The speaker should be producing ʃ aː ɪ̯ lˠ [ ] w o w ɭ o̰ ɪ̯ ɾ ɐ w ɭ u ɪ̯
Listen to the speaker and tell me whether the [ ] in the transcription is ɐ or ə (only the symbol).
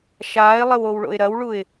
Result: ə